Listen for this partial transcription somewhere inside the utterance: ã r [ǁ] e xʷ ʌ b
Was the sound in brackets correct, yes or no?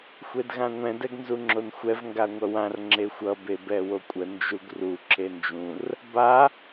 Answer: no